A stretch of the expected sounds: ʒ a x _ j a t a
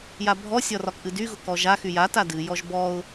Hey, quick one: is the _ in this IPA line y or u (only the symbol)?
y